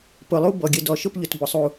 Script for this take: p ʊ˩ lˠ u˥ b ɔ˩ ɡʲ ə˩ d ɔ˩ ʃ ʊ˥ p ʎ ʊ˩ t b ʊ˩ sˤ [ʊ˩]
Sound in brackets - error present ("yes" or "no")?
yes